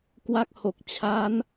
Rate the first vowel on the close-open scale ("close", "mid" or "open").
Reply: open